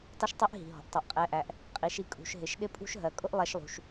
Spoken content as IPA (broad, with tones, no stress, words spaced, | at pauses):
tˤʌ˥ʃtˤɛ˥ʔɦi̤˩ɦɔ̤˩ʔ tˤɛ˩ʔqʼɛ˩˧ʔæ˩ʔ | qʼi˩˧ʃ i˧kʼṳ˩˧ʃ ɦɪ˩˧ʃɗɪ˥pʼṳ˥ʃ ɦɜ˩˧kʼʊ˥ʔlˠɛ˧ʃlˠṳ˩ʃ